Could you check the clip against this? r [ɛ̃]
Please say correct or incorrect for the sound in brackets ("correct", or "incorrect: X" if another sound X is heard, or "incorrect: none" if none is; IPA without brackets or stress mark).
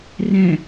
correct